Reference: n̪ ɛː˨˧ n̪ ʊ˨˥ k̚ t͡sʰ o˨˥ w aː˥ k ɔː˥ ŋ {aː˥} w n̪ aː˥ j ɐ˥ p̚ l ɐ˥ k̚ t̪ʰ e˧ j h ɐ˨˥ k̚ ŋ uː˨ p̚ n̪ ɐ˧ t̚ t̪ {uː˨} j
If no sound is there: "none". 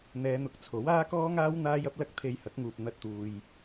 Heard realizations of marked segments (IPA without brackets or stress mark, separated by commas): aː˥, uː˨